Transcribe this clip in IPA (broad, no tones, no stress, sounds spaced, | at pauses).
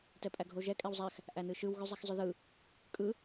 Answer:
t ɛ pʼ æ ɡʱ o ʒ ɛ kʼ ɛ w zˤ æ x | ʔ æ n ɯ ʃ ɯ w ɣ y zˤ ɛ x zˤ y ð ɯ | kʼ ɯ